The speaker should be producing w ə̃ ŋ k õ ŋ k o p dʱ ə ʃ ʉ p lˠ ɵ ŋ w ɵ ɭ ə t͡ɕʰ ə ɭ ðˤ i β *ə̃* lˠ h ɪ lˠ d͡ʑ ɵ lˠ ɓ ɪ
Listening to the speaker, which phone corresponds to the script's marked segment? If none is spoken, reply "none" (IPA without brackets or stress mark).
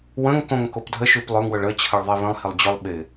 ə̃